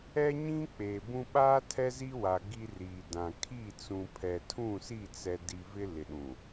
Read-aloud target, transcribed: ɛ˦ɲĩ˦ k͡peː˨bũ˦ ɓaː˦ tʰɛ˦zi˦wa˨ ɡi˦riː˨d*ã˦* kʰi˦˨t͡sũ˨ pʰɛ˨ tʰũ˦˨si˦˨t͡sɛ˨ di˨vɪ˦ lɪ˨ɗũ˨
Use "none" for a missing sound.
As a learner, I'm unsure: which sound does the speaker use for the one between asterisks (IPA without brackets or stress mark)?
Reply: ã˨